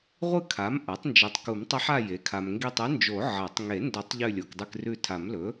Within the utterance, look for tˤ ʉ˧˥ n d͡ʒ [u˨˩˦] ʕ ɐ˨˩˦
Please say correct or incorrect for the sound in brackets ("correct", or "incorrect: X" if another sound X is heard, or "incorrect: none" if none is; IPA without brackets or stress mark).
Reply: incorrect: o˨˩˦